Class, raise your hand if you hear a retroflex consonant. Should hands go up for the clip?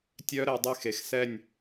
no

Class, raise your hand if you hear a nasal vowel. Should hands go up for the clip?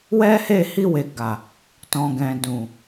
yes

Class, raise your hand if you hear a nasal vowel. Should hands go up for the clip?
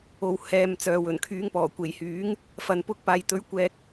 no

